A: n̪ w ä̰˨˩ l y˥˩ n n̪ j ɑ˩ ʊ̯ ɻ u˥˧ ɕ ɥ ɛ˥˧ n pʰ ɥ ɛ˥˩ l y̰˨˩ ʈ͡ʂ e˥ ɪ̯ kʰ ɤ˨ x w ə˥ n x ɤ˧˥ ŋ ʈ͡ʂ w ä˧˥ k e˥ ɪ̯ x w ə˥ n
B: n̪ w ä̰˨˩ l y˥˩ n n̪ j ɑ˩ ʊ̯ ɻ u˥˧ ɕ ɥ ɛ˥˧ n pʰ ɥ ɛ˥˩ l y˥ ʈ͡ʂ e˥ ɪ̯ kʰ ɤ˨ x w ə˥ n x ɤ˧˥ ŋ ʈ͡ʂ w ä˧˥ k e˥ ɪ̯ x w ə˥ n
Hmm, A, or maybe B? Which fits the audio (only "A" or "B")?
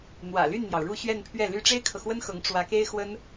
B